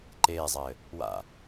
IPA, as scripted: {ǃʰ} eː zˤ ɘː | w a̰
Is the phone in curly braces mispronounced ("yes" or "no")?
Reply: yes